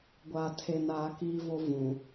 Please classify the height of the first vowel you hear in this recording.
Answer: low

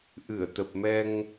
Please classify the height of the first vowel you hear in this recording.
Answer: high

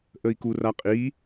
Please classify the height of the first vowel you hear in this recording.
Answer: mid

